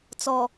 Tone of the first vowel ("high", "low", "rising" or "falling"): low